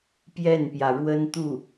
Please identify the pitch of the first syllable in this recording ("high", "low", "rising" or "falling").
falling